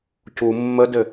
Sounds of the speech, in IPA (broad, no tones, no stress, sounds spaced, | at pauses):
c u mː ə d ɘ